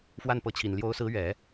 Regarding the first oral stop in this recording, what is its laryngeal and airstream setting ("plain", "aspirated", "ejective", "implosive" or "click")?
plain